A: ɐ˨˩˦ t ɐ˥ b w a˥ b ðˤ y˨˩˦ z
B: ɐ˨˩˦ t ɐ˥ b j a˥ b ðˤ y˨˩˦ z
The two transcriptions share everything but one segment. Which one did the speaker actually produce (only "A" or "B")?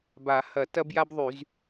B